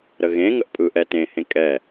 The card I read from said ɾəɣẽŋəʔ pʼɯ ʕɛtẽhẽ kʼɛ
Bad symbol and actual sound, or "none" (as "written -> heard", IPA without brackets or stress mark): ʕ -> ʔ